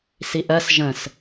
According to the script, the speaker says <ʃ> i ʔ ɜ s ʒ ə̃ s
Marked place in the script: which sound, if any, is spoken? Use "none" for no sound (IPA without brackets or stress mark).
s